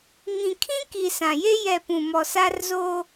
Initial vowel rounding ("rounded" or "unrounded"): unrounded